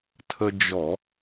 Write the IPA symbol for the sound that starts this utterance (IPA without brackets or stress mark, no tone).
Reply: tʰ